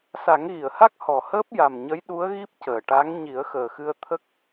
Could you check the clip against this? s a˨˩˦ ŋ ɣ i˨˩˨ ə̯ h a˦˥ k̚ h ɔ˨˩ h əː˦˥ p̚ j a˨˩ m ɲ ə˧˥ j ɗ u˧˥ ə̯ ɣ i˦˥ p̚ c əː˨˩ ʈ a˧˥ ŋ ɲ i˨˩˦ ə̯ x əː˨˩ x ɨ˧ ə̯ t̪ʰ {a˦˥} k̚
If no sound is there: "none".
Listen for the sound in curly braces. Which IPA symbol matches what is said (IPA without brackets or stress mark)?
ə˦˥